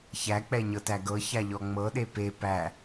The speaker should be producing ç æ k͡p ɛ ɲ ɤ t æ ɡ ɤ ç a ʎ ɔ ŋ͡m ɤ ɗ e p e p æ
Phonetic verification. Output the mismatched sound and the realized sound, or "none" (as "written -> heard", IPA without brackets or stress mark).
none